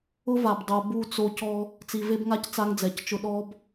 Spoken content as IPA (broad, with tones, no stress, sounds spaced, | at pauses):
ʊ˦ v a˨ b dˤ o˨ b u˦˨ t͡s o˦ c ɔ˦ | t͡s i˨ v e˦ b ŋ a˦ c t͡s a˦ ŋ d͡z ɛ˨ c t͡ʃ ʊ˦ ɗ ɔ˦ b